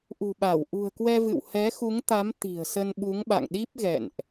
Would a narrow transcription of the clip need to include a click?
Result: no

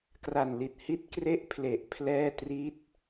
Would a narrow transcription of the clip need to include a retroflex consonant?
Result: no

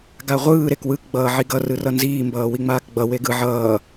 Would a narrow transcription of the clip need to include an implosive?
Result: no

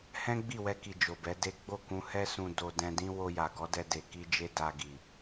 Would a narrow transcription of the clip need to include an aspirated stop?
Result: no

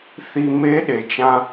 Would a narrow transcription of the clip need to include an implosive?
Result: yes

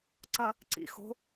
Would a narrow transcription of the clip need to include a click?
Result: yes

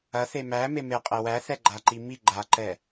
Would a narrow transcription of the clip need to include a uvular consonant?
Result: yes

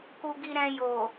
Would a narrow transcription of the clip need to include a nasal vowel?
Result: yes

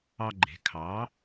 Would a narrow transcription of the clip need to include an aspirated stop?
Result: yes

